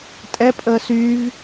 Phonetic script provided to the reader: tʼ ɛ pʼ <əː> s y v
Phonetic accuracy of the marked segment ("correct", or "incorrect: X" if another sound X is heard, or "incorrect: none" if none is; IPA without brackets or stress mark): correct